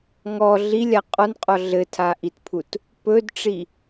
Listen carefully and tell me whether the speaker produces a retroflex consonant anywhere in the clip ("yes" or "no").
yes